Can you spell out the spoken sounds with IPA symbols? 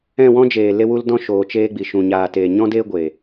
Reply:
ɛ̃˦˨ w ɔ̃˦ d͡ʒ eː˨ l e˧ w u˧ l d ɔ̃˧ ʃ oː˨ t͡ʃ eː˧ ɡ͡b i˨ ʃ ũ˨ ɲ aː˨ t eː˨ ɲ ɔ̃˦ d eː˦ ɡʷ e˨

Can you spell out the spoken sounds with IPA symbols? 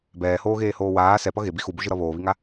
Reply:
b ɛː h oː ɣ eː h oː w aː s ɛ p ʌ ɣ e b i x u b u ʒ ɯ ɾ ʌ β oː β i ŋ a

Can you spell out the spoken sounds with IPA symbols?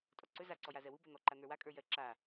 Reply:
tʼ ɔ ǀ ɵ z a ǀ ɔ j a z ɜ w u b ɜ n̪ ɔ ǃ a n̪ ə˞ w a kʼ ə˞ j ɜ ǁ a

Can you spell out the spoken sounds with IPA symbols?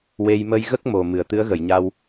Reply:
w e˧ j m ə˧ j ɣ ə˦˥ k̚ m o˨˩ m ɨ˨˩ ə̯ t̪ ɨ˧˥ ə̯ ɣ ə˨˩˨ j ɲ a˧ w

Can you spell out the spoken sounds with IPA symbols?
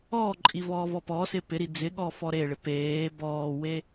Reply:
ɔː ǃʼ i v ɔː v ɔ p ɔ s ɪ p ɪ ɾ i d͡z ɪ ɠ ɔ f ɔ ɾ e ɭ ɪ p eː b ɔː w e

